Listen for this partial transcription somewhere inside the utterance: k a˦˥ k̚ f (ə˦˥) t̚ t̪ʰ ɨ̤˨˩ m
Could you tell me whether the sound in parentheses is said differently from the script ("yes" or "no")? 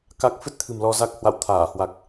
yes